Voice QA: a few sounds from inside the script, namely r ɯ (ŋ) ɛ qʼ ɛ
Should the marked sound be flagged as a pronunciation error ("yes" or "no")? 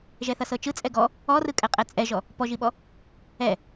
yes